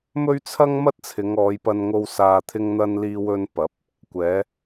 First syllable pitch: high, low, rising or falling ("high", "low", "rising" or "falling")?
high